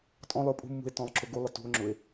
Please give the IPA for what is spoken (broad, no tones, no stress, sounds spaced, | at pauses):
tʼ ɔ̃ lˠ ʏ o̯ pʼ ṳ mː ṳ e̯ t ɔ̃ lˠ ǁ ʊ ɡ u lˠ ə t ṳ o̯ ŋ͡ǁ ʊ e̯